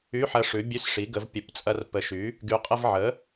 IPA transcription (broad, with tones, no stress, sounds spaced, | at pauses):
y˧˥˧ ħ ɐ˧ ʂ ʉ˩˥ bʲ ʉ˧˥˧ s ʂ i˩˥ ɡ ə˩˧ v pʲ ə˩˥ p t͡sʼ ɐ˧ r p ə˩˥ ʃ y˩˥ | ɡ y˩˧ qʼ ə˧ v ʕ ə˩˥